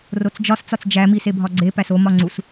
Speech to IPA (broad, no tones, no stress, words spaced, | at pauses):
rot͡sd͡ʒɒst͡sɒt͡s d͡ʒæmisebʱɒ ɡ͡ǀepæs o mɒŋ͡ǀus